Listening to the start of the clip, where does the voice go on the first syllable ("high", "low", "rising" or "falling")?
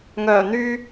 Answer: low